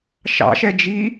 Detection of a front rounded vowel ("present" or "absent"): absent